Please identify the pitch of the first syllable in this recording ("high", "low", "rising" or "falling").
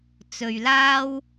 low